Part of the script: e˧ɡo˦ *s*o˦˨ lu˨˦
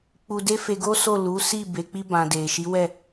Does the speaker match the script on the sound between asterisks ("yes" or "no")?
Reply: yes